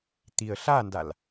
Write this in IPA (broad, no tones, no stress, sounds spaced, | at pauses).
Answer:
t̪ i ə̯ ɬ a n d a l